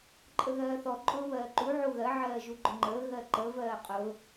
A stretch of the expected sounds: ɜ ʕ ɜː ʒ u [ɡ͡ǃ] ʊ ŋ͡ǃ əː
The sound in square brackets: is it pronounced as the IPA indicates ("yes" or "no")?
yes